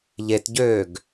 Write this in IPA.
ʎ e t ɟ øː ɡ

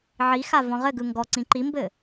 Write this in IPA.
ʕ i x a v ɔ̃ ʁ ɘ ɡ ɯ ŋ ɡ ɔ ǀ ĩ ǃ i m b ɘ

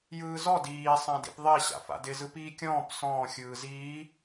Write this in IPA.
j ɯː z ɔ d iː sˤ ã d ḭ p ðˤ i ɕ a̰ f a̰ d ɪ z ɯ p iː kʲ ɔ̃ː p s ɔ̃ː xʲ ɯː z iː

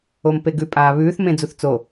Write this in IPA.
o m p e ɡ ʉ pʼ aː β ʉː θ m ẽ d͡z u θ t͡s o

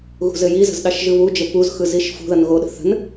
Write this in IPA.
ɣ ṳ z ɘ j i z ə̤ z ɗ ɑ ʃ ʒ ɯ β u d͡ʒ ə p u z x ɯ z i ʃ f ṳ ð ʌ n ɣ o ɗ ə̤ θ ə̤ n

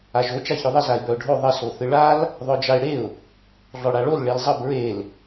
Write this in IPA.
a ʒ o t͡ʃ a ç œ ðˤ ə z a ɪ̯ b œ ʊ̯ ɖʱ o ðˤ ə s o θ ɨ ɭ a l | ðˤ œ d͡ʒ a ɪ̯ ɽ e ʊ̯ | ɮ ɔ ɽ a ɭ o l ɭ e l zˤ ə b ɹ e l

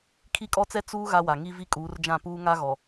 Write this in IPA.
kʰ i˦ kʼ ɔ˦ t͡s ɛ˦ t͡s uː˦ ɣ a˦ w a˨ ŋ i˦ v i˦ kʼ uː˨˦ r d͡ʒ ã˦˨ p uː˦ ŋ a˦ ɣ ɔ˨

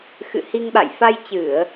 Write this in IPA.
x ɨ̰˧˨ h i˧ ŋ ɓ a̰˧˨ j f a˧ j t͡ɕ ɨ˧˩˨ ə̯

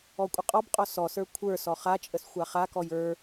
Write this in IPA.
ɔ kʷʼ ə qʼ ɔ b qʼ ɔ s ɔ s ə˞ kʷʰ ə˞ s ɔ χ a t͡ʃʼ ə s xʷ a χ a k ɔ j ə˞

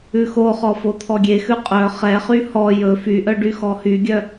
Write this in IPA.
ʉ x o χ ɔ f o t̪ʰ ɔ ɡʲ e x ʉ qʼ œ χ ɛ χ y h ɔ j ɵ f y ʔ œ ɖ y x ɔ h y ɡʲ œ

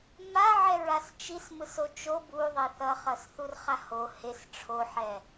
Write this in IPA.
m a ʕ ɛ ɹ a s t͡ʃ i s m ɯ s o t͡ʃ o b u ðˤ e θ ʌ χ ʌ s θ u r χ a h o h e s ʈ͡ʂʰ o ħ ɛ

